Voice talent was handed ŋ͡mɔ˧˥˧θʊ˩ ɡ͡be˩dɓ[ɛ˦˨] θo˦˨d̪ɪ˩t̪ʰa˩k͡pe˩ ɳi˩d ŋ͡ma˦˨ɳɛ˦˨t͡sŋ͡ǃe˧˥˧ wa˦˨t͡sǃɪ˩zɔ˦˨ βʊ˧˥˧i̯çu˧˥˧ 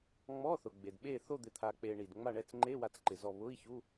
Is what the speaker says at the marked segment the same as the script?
no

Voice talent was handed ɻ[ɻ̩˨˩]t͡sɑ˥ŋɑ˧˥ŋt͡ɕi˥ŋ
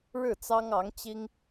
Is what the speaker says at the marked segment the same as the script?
no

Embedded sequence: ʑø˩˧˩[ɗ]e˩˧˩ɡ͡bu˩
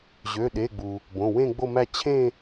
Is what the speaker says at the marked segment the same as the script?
yes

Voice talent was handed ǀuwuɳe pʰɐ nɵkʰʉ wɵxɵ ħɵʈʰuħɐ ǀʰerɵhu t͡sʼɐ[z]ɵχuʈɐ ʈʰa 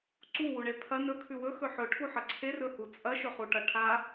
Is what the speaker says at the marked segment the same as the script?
no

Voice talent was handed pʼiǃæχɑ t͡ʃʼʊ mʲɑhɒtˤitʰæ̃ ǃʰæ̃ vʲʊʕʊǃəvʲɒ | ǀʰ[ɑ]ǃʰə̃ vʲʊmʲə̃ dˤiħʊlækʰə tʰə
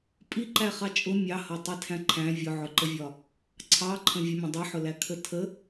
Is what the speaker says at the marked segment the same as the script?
yes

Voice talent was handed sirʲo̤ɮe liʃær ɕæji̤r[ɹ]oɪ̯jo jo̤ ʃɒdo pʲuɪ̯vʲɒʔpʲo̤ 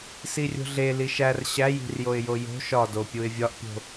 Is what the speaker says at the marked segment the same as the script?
no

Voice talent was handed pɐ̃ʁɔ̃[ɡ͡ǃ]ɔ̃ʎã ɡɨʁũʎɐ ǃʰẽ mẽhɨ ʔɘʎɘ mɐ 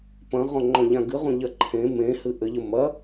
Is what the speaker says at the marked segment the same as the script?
no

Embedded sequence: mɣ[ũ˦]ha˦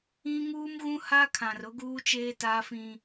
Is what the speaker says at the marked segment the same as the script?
yes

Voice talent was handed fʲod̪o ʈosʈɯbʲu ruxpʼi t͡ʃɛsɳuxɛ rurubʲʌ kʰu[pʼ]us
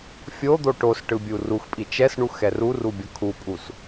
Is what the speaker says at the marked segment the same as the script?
yes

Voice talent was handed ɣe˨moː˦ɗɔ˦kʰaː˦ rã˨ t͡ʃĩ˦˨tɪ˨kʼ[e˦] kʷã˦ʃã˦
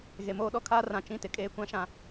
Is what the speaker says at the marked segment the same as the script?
no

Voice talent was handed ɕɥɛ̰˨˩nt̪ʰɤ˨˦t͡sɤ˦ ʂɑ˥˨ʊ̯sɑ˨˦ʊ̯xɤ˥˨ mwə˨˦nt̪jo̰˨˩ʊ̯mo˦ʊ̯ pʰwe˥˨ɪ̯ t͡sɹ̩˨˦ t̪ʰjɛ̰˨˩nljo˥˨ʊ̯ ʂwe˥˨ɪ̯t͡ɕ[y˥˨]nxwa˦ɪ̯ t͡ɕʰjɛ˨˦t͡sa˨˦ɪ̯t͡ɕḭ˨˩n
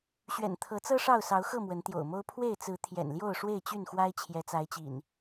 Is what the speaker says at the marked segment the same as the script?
yes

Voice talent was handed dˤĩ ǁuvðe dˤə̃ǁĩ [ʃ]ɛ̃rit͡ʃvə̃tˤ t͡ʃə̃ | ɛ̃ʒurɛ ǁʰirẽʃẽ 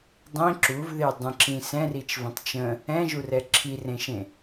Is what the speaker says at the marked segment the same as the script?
no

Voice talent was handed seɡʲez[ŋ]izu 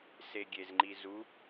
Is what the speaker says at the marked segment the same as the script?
no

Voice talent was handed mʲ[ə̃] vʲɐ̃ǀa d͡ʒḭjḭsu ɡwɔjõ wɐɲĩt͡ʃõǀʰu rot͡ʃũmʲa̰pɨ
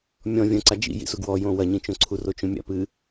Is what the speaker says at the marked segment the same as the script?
no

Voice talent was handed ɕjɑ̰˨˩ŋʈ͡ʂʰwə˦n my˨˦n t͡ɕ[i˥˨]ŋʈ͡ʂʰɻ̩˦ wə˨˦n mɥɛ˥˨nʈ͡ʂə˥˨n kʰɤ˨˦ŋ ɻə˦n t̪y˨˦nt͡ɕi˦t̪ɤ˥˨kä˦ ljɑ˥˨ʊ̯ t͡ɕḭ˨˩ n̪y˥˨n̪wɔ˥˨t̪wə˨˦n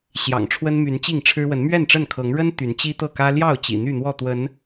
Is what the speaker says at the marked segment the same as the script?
yes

